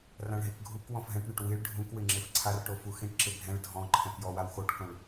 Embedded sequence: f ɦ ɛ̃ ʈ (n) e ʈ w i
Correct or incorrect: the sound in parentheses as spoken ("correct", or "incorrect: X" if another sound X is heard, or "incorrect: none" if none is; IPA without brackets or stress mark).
incorrect: ɳ